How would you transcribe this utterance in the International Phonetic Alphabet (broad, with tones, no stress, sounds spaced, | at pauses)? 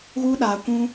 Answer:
ɣ u˦ ɗ aː˧ kʷ ũ˦